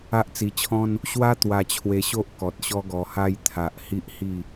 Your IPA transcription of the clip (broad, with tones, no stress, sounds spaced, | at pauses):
a˦ ʔ t͡s i˧ t͡ɕʰ ɔ̃˦ n | ɕ w a˦ t̪ w a˧ t͡ɕʰ w e˧ ɕ o˦ ʔ k ɔ˨ t̚ ɕ ɔ˦ ɡ ɔ˧ h a˦ j t̪ʰ a˨ ʔ h i˦ ʔ h i˥˧